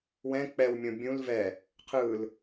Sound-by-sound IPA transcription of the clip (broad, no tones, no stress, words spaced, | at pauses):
wɛ̃ k͡pɛwmʲõ bʲũl vɛ | qʰɯl